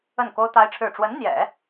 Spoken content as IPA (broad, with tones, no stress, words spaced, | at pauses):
ə˥˩nko˥ʊ̯t̪a˥ɪ̯ʈ͡ʂʰɻ̩˥˩ ʈ͡ʂwə˧˥nn̪jɛ̰˨˩˦